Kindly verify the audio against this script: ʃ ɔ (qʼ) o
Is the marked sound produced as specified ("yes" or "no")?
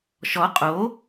yes